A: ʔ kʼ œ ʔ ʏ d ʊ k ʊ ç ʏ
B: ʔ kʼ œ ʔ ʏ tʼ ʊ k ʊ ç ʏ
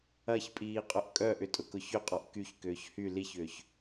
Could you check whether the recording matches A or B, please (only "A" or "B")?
B